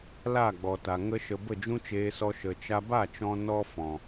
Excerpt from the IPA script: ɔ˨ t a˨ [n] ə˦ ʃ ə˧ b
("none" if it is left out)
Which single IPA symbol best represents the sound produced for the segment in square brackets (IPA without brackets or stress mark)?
ŋ